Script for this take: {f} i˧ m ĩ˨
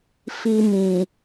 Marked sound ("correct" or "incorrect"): correct